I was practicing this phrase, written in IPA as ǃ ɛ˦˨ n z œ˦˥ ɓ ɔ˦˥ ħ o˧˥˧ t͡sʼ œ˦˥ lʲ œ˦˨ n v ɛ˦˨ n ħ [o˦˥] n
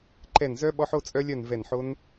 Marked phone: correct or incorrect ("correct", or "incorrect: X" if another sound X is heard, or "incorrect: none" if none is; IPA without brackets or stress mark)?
correct